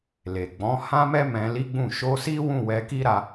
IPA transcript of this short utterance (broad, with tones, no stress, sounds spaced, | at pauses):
l e˨ ɡ͡b ɔ̃˨˦ h ã˦ m ɛ˦ m ɛ̃˧ l i˦ ɡ͡b ũ˦˨ ʃ o˧ s i˦ w ũ˦˨ w ɛ˧ k i˦ ɾ a˧